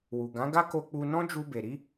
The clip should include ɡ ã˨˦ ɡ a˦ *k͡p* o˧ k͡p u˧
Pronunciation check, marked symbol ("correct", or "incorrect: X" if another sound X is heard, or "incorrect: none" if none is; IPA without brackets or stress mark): incorrect: k